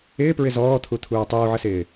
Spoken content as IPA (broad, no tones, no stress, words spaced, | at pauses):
ɪːpɹɪ zɔːt̪ʰut̪ʰuː tˤuːʕəsɪː